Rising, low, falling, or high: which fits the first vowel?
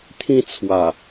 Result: high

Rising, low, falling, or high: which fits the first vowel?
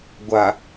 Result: low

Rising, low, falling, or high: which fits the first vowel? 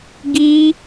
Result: high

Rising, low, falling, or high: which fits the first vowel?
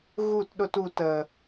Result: falling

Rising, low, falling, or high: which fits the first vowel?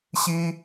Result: high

